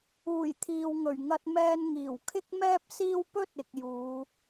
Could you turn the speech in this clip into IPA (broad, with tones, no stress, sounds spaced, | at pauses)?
uː˨˩ j t̪ʰ iː˨ w ŋ ɵ˨˩ ɥ ŋ ɐ˧ t̚ m ɛː˧ n ŋ iː˨˩ w kʰ ɪ˥ k̚ m ɛː˥ p̚ s iː˥ w p ɵ˥ t̚ ɪ˧ k̚ j uː˨˧